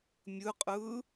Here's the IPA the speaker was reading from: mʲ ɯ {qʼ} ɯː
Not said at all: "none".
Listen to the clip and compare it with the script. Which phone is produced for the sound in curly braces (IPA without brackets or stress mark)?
qʼ